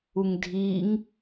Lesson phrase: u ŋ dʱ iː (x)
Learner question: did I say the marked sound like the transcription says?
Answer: no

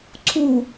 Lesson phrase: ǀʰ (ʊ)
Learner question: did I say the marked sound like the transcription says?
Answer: no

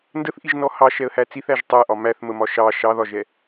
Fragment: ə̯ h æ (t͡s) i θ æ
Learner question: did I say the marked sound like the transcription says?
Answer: yes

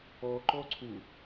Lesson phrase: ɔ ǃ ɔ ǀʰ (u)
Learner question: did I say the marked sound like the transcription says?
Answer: yes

